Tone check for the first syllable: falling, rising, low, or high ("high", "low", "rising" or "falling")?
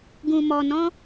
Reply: low